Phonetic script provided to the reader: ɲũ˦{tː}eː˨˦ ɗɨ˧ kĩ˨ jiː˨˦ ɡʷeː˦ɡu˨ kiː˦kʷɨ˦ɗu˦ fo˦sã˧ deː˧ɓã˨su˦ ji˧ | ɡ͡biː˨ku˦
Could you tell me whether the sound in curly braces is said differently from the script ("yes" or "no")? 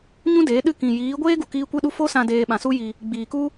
yes